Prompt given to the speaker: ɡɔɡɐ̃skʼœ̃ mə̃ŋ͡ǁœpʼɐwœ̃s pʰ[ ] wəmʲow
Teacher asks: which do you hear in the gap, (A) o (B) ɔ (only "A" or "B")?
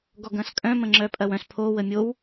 A